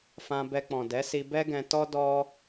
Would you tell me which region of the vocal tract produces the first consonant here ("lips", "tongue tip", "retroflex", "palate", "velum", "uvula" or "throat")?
lips